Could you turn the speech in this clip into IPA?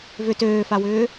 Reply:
v ʏ t øː f a w ʏː

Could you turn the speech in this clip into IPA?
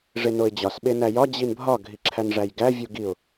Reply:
ʐ e n o ɪ̯ d͡ʑ ɒ s ɓ e n æ j ɒ d͡ʑ i n bʱ ɒ ɡʱ i ǁʰ æ n ʐ æ j ɡ æ vʲ u ɡ i ʊ̯

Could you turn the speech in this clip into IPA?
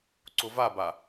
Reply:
ǀ ʊ v a b a

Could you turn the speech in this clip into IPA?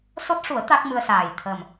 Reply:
s o˦˥ t̚ ʂ u˨˩˦ ə̯ t̪ a˦˥ k̚ m ɨ˧ ə̯ s aː˨˩ j t̪ʰ əː˨˩ m

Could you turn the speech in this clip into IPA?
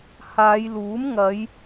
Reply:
h aː˨˧ j l uː˨˥ m ŋ ɐ˨˧ j

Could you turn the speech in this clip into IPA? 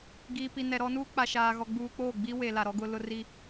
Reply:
ɡ iː˨ p i˨ n ɛ˨ ɾ ɔ˦ n uː˦ k͡p a˨ ʃ aː˨ ɣ ɔ˨ ɡ͡b uː˨ k͡p oː˦˨ ɡ͡b i˦ w e˨ l a˨ ɾ ɔ˦ ɡ ʊ˦ l ʊ˦ r i˦

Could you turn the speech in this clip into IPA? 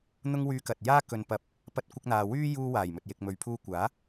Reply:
n̪ ʊ˧ ŋ w yː˨˧ k ɐ˨ t̚ j aː˥ k ɵ˨ n p ɐ˨˥ p̚ | p ɐ˧ t̚ kʷ ɪ˧ k̚ n̪ aː˨ w yː˥ j uː˧ w aː˨˩ j m ɵ˨ t̚ j ɪ˨ k̚ m ɵ˨ ɥ pʰ uː˧ kʷ aː˨˥

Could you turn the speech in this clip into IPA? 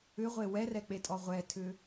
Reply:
ʏ ʁʷ e w ɛ r ɛ k͡p e tʼ ɔ ʁʷ ɛ tʰ ʏ

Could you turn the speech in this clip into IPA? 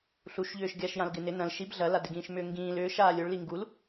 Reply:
ɬ u ʃ ʎ ʏː ʃ ɡʲ a ʃ j ã l ɡ ɪ n ɪ n ɐ̃ l ʃ i b ɮ ɐ l a d ɪ ɡ ĩː ʃ m ʏː ŋ ɡ ĩː l ʏː ʃ aː lʲ o ɭ l i ŋ ɡ u l

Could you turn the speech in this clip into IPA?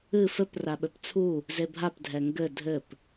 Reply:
ɨ f ɘ p r a ɓ ɘ p t͡sʰ u | z e bʱ a p dʱ ɛ ŋ ɡ ɘ dʱ ɘ p

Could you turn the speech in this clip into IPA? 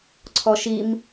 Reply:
ǀʰ ɔ ʃ i m

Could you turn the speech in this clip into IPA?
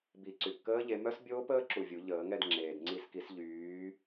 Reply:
b i˨˩˦ ǀ y˩ p k əː˦˥ ʎ e˨˦ m œ˦˥ s bʲ oː˦˥ p əː˦˥ ǁ u˧˩ vʲ u˨˩˦ ʎ əː˨˩˦ ŋ ɛ˥˨ d ŋ͡ǁ eː˩ d ŋ͡ǀ i˧˩ s k i˨˩˦ s ʎ yː˨˦

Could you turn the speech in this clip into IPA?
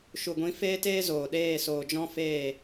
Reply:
ʃ u˨ ɡʷ ĩ˨˦ f eː˦ t eː˦ z oː˨ ɗ eː˦˨ s oː˨ d͡ʒ ɔ̃˦ f eː˦˨

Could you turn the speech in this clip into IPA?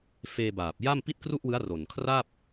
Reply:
f eː˧ b aː˨˩ p̚ j a˥˩ m p i˥˩ t̚ k r u˥˩ ʔ w ɯ˦˥ a̯ r o˨˩ n kʰ r a˥˩ p̚

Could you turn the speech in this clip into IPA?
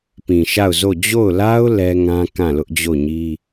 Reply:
p ĩ˨ ʃ a˦˨ ʊ̯ z o˦˨ d͡ʑ o˦˨ ʊ̯ l a˦ ʊ̯ l ɛ˦ ŋ ã˦ k ã˦˨ l ʊ˦ ʔ d͡ʑ o˦˨ ɲ i˦

